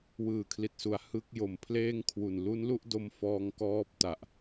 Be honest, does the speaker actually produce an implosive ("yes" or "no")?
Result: no